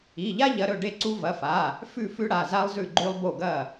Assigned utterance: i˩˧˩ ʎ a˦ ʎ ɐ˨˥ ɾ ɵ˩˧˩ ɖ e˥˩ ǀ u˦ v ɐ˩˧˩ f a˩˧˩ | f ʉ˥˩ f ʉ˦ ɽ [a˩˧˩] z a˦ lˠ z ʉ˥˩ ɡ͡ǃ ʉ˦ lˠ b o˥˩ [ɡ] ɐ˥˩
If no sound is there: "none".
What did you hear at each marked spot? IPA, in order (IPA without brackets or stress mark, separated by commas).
a˩˧˩, ɡ